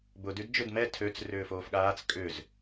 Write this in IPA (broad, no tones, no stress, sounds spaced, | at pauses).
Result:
b ʊ d y d d͡ʒ ʏ d m ɛ tʰ ø t͡s r ʏː f oː f ɠ aː t͡s kʼ ʏ z